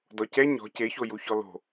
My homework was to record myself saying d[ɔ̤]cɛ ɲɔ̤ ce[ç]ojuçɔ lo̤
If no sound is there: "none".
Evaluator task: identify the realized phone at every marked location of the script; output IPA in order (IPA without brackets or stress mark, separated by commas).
ɔ, ç